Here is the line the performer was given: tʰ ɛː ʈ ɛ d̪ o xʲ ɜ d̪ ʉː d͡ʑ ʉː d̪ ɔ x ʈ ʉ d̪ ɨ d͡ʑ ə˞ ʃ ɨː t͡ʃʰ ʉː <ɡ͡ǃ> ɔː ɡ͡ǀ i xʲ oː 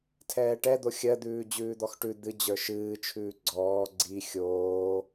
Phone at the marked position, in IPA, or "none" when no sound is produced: ɡ͡ǀ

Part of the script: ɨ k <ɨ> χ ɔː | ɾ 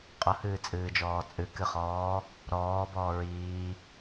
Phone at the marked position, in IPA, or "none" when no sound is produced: ɨ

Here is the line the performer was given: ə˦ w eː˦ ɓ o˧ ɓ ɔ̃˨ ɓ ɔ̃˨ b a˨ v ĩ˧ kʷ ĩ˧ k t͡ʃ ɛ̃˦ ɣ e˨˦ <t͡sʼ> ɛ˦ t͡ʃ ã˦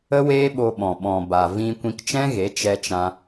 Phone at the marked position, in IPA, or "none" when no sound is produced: t͡ʃ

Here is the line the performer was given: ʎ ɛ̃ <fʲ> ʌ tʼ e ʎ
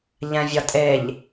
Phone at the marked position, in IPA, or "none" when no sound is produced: vʲ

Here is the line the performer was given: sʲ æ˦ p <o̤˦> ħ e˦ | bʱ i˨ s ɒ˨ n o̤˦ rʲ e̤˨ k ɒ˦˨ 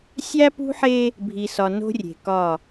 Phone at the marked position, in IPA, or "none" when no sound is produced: ṳ˦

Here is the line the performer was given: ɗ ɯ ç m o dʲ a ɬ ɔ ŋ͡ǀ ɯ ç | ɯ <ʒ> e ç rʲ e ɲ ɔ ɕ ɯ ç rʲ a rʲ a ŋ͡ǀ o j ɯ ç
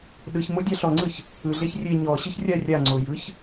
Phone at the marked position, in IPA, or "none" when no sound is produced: ɮ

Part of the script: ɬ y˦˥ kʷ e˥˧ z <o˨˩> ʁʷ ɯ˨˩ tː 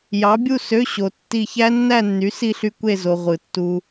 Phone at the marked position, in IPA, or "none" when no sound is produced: o˧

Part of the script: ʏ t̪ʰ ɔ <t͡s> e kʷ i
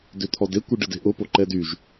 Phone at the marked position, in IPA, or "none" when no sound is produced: d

